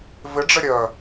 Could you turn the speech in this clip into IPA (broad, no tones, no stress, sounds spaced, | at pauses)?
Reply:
v ɪ ɖ͡ʐ ɘ ɾʲ œ